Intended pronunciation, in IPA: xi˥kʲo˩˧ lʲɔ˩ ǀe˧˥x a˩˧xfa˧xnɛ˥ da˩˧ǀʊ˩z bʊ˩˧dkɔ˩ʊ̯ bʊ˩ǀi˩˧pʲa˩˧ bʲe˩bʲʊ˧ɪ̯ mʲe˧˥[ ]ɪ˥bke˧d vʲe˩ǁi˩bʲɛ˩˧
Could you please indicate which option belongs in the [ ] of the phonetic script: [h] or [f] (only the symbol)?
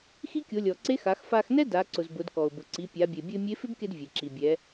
f